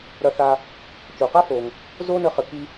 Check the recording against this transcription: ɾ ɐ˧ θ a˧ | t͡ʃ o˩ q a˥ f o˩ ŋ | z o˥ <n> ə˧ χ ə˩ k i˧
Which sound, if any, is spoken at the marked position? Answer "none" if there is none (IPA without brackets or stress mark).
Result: n